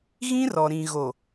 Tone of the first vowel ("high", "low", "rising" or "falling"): high